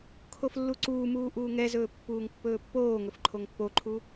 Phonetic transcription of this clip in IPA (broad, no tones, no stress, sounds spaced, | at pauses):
kʰ o f lː u ǀ uː m uː ʔ uː ŋ ɛ z ɵː pː uː ŋ pː ɵː pː oː ŋ ɵ f ǃʰ o ŋ pː o ǃʰ u